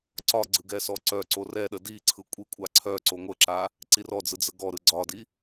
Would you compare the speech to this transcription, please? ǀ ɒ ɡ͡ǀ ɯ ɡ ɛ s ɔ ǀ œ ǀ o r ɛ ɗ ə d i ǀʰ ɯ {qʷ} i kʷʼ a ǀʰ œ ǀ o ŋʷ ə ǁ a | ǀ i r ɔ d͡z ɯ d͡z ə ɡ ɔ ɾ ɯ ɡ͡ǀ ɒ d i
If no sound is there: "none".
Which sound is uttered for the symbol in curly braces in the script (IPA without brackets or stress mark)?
kʷʼ